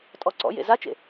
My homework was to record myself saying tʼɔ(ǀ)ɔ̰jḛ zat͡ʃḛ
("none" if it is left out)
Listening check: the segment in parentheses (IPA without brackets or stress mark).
ǀ